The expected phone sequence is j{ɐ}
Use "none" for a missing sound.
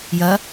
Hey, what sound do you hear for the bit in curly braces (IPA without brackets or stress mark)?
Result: ɐ